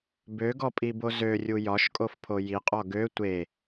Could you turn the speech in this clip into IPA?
b ø ɡ ɔ pʼ i b o z ø rʲ u j ɒ ʃ kʼ o f pʰ o j i qʼ ɔ ɡ ø tʷ e

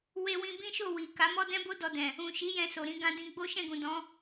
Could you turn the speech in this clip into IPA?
w e˧ w ĩ˧ b ĩ˦ ʃ o˦˨ w i˨ k a˨˦ m ɔ˦ d ɛ̃˦ b o˦ d ɔ˧ d ɛ̃˨ | ũ˨ ʃ i˨˦ j ɛ̃˧ s o˨ ɾ ĩ˧ ɡ ã˧ d ĩ˧ ɡ͡b o˦ ʃ ɛ̃˦˨ ɡ ũ˨ d ɔ̃˨˦

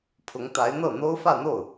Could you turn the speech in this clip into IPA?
pʰ ʊ˧˥ ŋ t̪ a˧˥ ɪ̯ n̪ ɤ˥˩ n̪ o˥ ʊ̯ f ä˥˧ n̪ o˥˩ ʊ̯

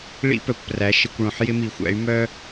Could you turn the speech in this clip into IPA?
ɭ ḭ˦ p œ˨ kʷ p r æ˨˦ ʃ ɪ˧ kʷ ɭ õ˧ ħ j ɪ˦ m i˨ xʷ æ̰˨˦ y̯ m œ˦

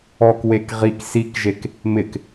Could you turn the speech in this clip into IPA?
ɔ k w e k ʁ i k s i k ʒ e k | m ɪ k

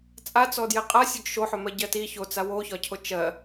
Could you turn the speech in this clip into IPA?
t͡sʼ a t͡s ɔ d j e qʼ a sʲ ɵ ɡ ʃ o ħ ɵ m ɜ ɟ ɜ t i ç o t͡s a w o ç ɒ cʰ o t͡ʃ ɜ

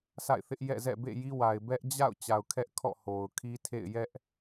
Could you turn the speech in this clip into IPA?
sʰ a̰˦˨ ɪ̯ θ ɪ˦ ʔ j ɛ̰˦˨ z ɛ̰˦˨ b ḛ˦˨ j i˦ w a˨ ɪ̯ b ɛ˦ ʔ d͡ʑ a̰˦˨ ʊ̯ t͡ɕ a˨ ʊ̯ kʰ ɛ˦ ʔ kʰ ɔ̰˦˨ h o˨ ʊ̯ kʰ i˦ tʰ ḛ˦˨ ɪ̯ j ɛ˦ ʔ

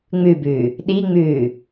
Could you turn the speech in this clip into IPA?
ŋ͡m ʉ b ʉː | ɗ i ŋ͡m ʉː

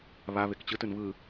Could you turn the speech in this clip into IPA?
β a β e k t͡ɕ ɯ t ɯ n β ɯ

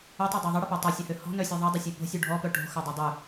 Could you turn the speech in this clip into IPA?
ʏ tˤ ɛ dˤ e ðˤ ə ɽ ə p ɛ tˤ œ sʲ ɐ h ø h ɔ̤ n œ sʲ ɛ ðˤ ɐ dˤ ə sʲ e p o̤ sʲ u ɖʱ ɔ p œ ʈ o̤ x œ dˤ y dˤ y

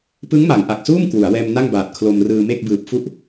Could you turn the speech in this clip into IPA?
p ɯ˦˥ ŋ m a˩˦ ŋ ʔ a˨˩ k̚ s uː˥˩ m k w u˩˦ a̯ w ɛː˧ m n a˥˩ ŋ b aː˨˩ t̚ kʰ l o˧ m r ɯː˧ m e˥˩ k̚ b ɯː˨˩ p̚ f u˦˥ ʔ

